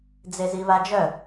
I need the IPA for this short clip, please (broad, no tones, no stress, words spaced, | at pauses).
d͡zeziβad͡ʒœ